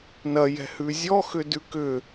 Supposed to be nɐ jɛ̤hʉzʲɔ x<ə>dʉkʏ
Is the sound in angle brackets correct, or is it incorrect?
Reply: incorrect